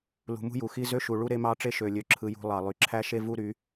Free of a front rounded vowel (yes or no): no